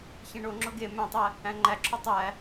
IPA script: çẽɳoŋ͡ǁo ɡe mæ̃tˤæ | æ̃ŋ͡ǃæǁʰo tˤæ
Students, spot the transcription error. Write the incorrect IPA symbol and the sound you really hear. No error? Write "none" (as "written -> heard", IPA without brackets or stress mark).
none